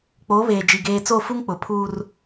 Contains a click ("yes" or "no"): no